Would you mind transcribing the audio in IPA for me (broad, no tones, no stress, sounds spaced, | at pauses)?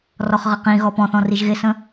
r ɔ χ ʁ ə q ĩ ɣ ɔ p ɔ̃ θ ɔ̃ r i ʒ ɣ ɪ s ə̃